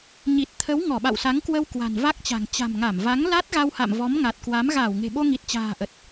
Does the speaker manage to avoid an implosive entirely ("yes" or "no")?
no